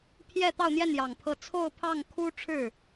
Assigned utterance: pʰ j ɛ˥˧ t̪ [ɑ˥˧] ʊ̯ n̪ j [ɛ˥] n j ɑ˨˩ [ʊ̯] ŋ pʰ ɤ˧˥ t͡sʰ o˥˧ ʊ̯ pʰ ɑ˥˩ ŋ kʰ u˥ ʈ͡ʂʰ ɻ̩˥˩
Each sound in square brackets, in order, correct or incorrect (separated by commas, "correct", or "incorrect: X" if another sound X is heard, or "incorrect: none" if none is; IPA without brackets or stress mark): correct, incorrect: ɛ˥˩, incorrect: none